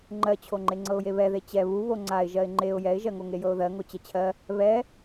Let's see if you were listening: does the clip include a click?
yes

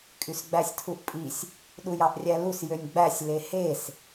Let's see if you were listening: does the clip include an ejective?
yes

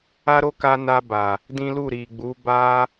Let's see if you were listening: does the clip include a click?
no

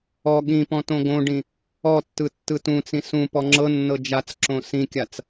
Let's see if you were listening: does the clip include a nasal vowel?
yes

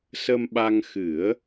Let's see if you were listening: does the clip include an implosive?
yes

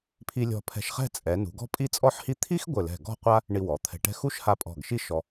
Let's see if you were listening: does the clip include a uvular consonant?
yes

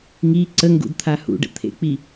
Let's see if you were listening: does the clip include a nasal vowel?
no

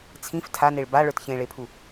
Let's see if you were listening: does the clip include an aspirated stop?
yes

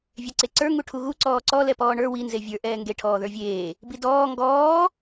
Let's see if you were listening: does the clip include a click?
yes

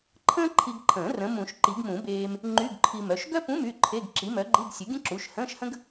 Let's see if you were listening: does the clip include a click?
yes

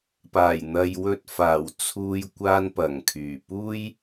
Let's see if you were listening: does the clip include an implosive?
no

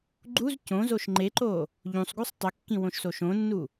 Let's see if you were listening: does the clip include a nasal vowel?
yes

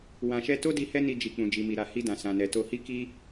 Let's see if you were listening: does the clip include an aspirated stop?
no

